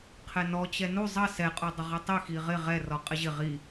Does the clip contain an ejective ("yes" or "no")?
yes